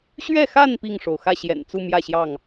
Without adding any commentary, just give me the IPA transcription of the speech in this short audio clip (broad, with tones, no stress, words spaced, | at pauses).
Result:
ɕɥɛ˥˨xa˥˨n pi˥˨ŋʂo˩ʊ̯ xä˥˨ɕjɛ̰˨˩nt͡su˥˨ mjä˥˨ɕjɑ˥˨ŋ